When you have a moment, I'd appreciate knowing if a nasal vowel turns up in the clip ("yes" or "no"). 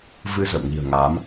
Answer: no